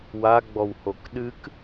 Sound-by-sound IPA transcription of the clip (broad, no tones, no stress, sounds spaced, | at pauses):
w a ɡ͡b ɔ w h o k ɗ ɨ k